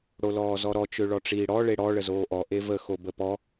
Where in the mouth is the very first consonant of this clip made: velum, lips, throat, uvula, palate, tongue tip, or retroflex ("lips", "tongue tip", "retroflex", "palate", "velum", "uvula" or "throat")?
retroflex